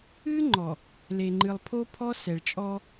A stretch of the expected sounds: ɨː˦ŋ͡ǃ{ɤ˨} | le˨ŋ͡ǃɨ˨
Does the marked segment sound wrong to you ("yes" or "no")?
yes